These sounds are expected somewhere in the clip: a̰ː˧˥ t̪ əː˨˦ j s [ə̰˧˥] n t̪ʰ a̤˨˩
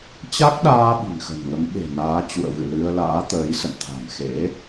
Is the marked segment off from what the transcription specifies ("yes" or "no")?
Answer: yes